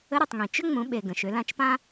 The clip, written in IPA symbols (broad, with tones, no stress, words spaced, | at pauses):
ə˧˥ɾu˩tˤŋĩ˩ t͡ʃʏ˥ŋ͡mũ˩˧ɓe˩ ɡə̃˩ʃʏ˩˧lã˧t͡ʃpã˥